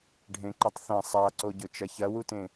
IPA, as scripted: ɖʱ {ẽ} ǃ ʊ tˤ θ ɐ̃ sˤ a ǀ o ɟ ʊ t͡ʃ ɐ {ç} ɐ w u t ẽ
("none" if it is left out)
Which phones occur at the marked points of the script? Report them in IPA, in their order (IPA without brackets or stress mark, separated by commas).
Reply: ẽ, ç